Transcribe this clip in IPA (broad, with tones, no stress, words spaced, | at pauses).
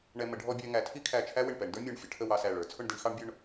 ɳɛ˧ mə˩˧ɖʱɔ˧bʲæ˧ ŋæ˩˧tʰi˥kʰæ˧˩t͡ʃʰæ˥ wɪ˧˩ɳpɛ˩˧ɳ də˞˥mʲɔ˧˩ɳ fʲə˩˧ʈʰə˥˧wɑ˧sæ˧˩ ɭə˞˩˧t͡sʰʊ˥˧ɳ di˥ɳ xɑ˥ɳbʲʊ˥˧ɳ